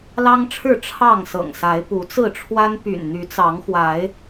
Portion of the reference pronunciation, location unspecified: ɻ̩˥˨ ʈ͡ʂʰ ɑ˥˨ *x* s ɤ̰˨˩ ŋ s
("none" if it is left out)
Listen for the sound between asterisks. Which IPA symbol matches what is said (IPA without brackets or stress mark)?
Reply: ŋ